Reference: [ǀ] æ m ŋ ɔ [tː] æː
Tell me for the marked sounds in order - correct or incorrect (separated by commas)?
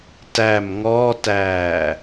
incorrect, incorrect